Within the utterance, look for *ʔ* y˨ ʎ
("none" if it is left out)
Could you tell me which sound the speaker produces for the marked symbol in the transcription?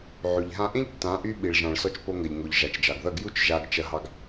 ʕ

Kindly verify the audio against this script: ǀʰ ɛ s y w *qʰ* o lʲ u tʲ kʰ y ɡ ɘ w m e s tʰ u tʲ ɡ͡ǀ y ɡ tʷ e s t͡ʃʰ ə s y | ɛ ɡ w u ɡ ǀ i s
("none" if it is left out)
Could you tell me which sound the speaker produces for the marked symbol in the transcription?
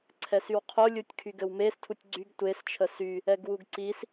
qʰ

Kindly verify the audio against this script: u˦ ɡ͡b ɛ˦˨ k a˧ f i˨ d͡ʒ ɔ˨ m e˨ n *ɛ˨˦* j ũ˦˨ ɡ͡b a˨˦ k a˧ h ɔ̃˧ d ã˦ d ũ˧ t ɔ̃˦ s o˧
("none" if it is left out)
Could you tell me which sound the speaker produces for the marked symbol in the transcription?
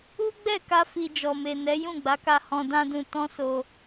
ɛ˨˦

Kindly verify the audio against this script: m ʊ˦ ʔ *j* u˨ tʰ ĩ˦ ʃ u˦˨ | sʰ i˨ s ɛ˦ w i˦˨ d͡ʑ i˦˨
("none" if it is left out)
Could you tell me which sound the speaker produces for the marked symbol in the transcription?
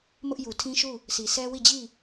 j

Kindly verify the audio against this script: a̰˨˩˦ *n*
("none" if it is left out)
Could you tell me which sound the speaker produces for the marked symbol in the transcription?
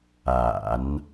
n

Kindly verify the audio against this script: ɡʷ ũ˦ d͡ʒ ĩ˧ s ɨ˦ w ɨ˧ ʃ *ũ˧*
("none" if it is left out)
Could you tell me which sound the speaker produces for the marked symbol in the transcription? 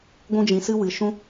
ũ˦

